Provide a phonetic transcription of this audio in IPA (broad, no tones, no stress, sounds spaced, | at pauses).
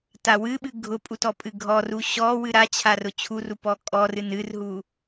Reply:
t a w ɨ ɓ ɨ ɡʱ ʊ pʼ u t ɔ pʼ ɨ ɡʱ ɔ r u ɕ ɔ w ɨ ɾ a t͡ɕʰ a r ʊ t͡ɕʰ u r u p ɔ kʼ ɔ r ɨ n ɨ r ɦ u